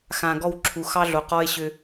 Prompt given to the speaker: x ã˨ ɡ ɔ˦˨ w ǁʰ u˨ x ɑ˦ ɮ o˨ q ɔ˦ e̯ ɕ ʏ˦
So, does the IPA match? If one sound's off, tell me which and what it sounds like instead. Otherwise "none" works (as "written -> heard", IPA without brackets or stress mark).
none